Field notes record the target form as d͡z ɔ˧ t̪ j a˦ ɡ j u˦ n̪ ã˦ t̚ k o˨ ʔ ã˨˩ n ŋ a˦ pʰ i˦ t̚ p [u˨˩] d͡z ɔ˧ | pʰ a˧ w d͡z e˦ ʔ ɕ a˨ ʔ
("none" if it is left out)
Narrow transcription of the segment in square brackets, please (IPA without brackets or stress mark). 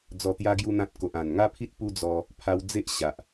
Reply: u˦